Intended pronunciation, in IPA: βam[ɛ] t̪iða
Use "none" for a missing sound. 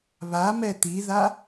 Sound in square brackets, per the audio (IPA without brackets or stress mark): ɛ